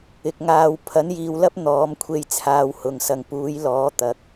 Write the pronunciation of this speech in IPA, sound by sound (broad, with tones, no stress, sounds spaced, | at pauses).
ɪ˨ k̚ ŋ aː˧ w pʰ ɐ˨˥ n j iː˨ w l ɐ˥ p̚ n̪ ɔː˨˥ m kʷʰ e˧ j t͡sʰ aː˧ w h ʊ˨˧ ŋ s ɐ˧ ŋ p uː˨˥ j l ɔː˨˥ t̪ ɐ˨˥ k̚